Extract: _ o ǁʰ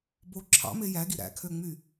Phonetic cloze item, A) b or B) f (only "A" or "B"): A